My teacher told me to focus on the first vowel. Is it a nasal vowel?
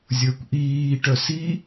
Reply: no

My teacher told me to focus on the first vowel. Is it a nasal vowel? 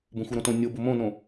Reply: yes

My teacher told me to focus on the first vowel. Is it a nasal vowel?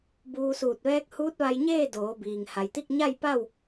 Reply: no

